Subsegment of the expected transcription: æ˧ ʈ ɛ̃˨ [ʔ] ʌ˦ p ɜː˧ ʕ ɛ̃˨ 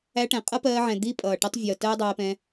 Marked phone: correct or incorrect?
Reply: incorrect